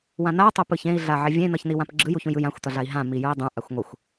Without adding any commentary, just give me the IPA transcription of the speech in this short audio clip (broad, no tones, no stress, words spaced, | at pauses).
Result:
wãna tˤopɯçẽi̯ ɮaʕevʲẽ nʌçniwãpɡ͡ǁɯj uçũjɯjãxʷ tʌɮai̯ɦã mijɯi̯dˤũ ʔaxʷŋʷʌxʷ